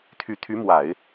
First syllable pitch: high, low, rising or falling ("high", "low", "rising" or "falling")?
low